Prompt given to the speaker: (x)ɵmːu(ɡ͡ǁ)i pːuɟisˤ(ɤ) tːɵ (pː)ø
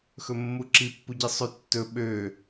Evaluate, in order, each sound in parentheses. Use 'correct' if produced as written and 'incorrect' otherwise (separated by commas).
correct, incorrect, incorrect, incorrect